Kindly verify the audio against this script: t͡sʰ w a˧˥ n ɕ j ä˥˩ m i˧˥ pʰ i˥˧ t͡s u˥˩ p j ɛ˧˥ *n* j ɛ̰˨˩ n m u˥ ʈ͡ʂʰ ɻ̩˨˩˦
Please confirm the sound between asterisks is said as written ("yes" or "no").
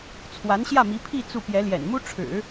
no